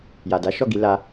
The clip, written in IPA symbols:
ja˨da˨˦ ʃɔ˦˨ɡi˧ la˦

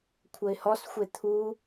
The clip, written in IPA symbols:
kʷʰəɪ̯hɔsxʷe t̪ʰu

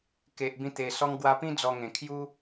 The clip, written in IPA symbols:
ke˨ʔbĩ˧t̪e˨˩ sɔ˧ŋɡwa˧pĩ˦ d͡zɔ˧ŋẽ˨˩ kʰju˦

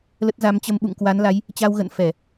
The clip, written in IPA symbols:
lə˦˥t̚ za˨˦mt͡ɕə˧m ɓṵ˧˨ŋkwa˨˦nla˨˦j | t͡ɕa˧wɣə̰˧˨n fɛ˧˩˨

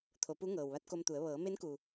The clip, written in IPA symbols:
t̪ʰo˩˧pu˧˥ ŋɤː˩wʋa˧˥t̚ko˧mt̪u˩˧ə̯ ʋɤː˩˧me˧˥nku˩

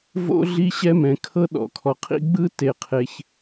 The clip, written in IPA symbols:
vo̰˥ ɮi˥ɕɛ˥mɛ̃˩kʰɤ˥ ɗɔ̰˩kʰɔ˩qʰḭ˥ ɡ͡bɯ˥ te˩qʰe˩ç

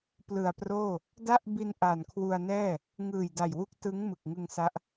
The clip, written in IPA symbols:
plɯ˨˩a̯proː˥˩ | da˦˥ʔ bi˧n ʔa˨˩nkʰwu˧a̯nɛː˥˩ | ŋɯː˨˩jda˨˩jwu˦˥k̚ tɯ˦˥ŋ mɯ˨˩k̚ŋɯ˧ŋsa˦˥ʔ

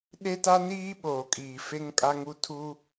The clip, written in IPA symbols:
ɗe˦ta˦niː˦ɓoː˨ kʼiː˨fe˦ŋkʼa˦ŋu˦ tʰu˦

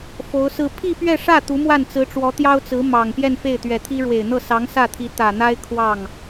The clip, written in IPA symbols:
fo˧˥ʊ̯sɹ̩˥˧ pʰi˥˧pɥɛ˥˧ʂä˥˩ t̪u˧˥mwa˥˩nt͡sɹ̩˧˥ʈ͡ʂwɔ˧˥ t̪jɑ˥ʊ̯t͡sɹ̩˧˥ mɑ˨˩ŋ pjɛ˥˧nfe˥˩ɪ̯t̪ɥɛ˨˩t̪ʰi˥ ɻwe˨˩ɪ̯n̪ɤ˥˩ sɑ˧˥ŋ sä˥˩t̪ʰi˧˥ t̪ä˨˩n̪a˥ɪ̯ kʰwɑ˥˩ŋ

